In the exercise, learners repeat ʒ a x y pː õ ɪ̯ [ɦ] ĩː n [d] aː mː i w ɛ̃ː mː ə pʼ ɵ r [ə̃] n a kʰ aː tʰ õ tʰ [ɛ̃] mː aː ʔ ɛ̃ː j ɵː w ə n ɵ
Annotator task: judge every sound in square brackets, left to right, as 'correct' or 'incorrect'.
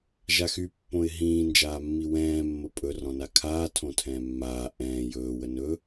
correct, incorrect: d͡ʒ, incorrect: ɔ̃, incorrect: ɛ̃ː

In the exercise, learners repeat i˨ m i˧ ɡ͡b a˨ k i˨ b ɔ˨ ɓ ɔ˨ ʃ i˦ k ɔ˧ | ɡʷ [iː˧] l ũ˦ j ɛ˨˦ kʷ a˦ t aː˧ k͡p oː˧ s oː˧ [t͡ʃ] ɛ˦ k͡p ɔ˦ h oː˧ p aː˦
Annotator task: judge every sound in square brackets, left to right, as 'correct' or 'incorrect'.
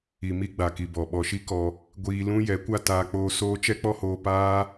correct, correct

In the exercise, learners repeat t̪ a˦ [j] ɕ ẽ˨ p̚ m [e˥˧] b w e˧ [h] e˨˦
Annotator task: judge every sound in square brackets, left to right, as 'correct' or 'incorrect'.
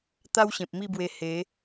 incorrect: w, incorrect: i˥˧, correct

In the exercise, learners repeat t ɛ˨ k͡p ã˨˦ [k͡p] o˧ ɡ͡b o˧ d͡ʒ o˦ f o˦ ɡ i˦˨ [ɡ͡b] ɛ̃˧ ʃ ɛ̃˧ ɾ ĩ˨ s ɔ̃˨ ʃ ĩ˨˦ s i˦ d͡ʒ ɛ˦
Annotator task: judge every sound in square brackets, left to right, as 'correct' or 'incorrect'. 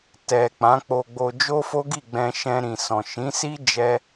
correct, correct

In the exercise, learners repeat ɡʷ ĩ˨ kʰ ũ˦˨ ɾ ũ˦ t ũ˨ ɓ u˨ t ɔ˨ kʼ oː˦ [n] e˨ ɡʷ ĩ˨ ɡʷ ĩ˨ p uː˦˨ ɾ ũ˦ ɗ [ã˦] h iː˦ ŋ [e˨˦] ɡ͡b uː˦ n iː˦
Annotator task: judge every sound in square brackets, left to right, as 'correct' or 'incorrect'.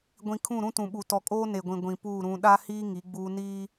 correct, incorrect: a˦, incorrect: i˨˦

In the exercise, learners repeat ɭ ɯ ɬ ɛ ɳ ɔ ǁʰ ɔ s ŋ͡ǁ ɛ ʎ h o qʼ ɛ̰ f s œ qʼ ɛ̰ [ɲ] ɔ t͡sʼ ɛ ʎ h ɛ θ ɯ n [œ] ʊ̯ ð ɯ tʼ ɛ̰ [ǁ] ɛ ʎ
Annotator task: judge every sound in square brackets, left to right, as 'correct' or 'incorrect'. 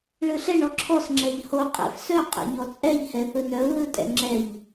correct, correct, incorrect: ŋ͡ǁ

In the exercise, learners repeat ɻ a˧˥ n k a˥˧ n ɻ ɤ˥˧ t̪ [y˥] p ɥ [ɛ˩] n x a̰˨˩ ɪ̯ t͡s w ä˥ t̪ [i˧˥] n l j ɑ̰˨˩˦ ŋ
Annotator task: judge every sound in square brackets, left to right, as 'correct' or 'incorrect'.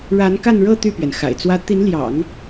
incorrect: y˥˩, correct, correct

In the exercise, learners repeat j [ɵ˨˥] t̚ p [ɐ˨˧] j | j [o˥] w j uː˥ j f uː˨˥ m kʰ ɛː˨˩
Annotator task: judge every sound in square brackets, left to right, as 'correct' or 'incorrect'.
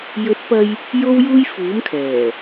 correct, incorrect: ɐ˧, correct

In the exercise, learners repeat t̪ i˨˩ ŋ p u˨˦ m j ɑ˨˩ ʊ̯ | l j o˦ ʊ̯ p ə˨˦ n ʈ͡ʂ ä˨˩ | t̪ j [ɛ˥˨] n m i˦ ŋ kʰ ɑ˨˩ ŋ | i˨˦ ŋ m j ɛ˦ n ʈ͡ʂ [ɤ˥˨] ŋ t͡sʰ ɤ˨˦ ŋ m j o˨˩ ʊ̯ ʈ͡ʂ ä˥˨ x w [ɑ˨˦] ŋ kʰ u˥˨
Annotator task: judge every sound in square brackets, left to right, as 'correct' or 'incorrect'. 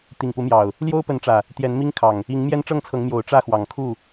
incorrect: ɛ˨˦, correct, incorrect: ɑ˨˩

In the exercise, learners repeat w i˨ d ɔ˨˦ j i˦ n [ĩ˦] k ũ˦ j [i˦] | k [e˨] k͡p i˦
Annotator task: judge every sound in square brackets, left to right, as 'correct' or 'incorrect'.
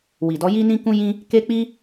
correct, incorrect: ĩ˦, incorrect: e˦

